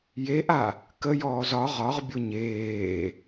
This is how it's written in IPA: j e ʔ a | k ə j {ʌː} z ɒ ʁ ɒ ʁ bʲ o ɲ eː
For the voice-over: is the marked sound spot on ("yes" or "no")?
no